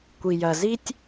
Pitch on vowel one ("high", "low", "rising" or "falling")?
low